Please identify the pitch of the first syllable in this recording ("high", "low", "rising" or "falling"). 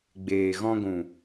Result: low